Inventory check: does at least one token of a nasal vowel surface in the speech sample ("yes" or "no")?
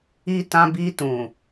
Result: yes